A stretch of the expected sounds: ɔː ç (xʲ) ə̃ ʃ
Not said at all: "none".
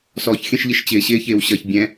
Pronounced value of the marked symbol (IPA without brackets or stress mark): xʲ